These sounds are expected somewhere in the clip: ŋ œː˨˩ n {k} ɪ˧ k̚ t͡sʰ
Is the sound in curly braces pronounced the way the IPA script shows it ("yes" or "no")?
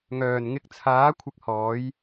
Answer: no